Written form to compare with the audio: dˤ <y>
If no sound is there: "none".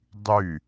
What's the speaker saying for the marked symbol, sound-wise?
y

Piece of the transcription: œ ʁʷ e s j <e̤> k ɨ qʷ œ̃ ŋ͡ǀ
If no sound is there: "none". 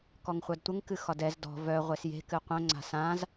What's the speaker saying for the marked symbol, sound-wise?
e̤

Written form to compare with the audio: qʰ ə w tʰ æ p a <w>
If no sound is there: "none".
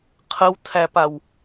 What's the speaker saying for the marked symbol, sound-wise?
w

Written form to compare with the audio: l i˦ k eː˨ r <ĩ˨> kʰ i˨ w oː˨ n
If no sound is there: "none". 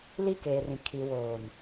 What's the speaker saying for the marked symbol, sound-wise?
ĩ˨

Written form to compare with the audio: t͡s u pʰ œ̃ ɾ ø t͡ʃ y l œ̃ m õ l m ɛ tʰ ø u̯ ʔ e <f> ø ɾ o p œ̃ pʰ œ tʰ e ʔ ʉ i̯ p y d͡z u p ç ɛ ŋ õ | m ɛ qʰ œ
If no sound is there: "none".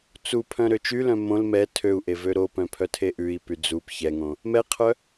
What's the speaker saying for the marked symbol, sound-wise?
v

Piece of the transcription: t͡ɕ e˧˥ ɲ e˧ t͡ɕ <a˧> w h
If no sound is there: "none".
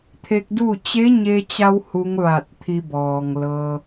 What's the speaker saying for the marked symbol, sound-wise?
a˧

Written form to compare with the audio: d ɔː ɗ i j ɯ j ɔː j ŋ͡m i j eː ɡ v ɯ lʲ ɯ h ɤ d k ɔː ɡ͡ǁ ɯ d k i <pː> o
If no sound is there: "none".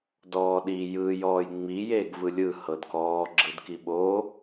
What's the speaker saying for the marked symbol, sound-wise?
ɓ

